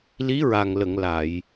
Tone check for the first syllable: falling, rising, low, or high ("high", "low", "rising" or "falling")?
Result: rising